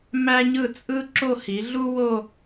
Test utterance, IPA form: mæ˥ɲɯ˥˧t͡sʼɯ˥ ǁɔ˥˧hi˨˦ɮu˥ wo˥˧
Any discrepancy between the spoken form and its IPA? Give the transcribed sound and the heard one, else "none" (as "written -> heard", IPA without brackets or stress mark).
ɔ˥˧ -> o˥˧